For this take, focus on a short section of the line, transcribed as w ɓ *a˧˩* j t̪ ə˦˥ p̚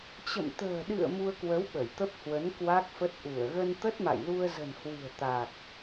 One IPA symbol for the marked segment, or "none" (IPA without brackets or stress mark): ə˧˩